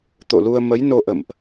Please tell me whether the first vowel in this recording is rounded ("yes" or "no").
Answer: yes